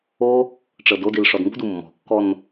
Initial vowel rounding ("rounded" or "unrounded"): rounded